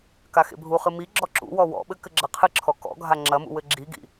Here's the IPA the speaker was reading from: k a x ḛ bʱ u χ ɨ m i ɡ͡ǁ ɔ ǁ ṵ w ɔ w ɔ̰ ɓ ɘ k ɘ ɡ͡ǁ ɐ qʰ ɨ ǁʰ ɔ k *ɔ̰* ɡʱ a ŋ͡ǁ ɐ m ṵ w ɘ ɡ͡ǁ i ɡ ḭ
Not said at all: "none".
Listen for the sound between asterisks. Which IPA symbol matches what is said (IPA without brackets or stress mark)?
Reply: ɔ̰